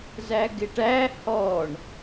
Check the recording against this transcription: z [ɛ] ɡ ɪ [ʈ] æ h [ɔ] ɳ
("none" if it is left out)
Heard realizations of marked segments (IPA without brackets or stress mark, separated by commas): æ, ʈ, ɔ